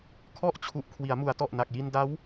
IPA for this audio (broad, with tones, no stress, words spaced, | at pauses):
kʰɔ˦˥ʔt͡ɕʰu˨˩ʔ kʰwi˩˦a̯mu˩˦a̯tɔ˨˩ʔna˨˩k̚ ji˧nda˦˥w